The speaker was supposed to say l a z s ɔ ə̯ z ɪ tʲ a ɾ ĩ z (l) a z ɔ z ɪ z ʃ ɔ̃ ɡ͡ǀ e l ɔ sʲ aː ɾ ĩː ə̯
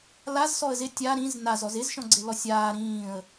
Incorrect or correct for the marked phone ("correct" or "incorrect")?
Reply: incorrect